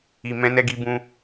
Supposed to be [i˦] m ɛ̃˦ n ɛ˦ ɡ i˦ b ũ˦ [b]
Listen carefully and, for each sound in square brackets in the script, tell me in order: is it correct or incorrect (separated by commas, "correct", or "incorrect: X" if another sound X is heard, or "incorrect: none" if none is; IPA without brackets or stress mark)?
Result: incorrect: i˧, incorrect: none